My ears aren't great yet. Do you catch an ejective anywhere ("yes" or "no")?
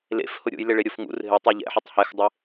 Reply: no